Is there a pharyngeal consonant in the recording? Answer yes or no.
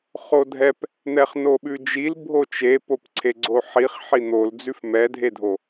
yes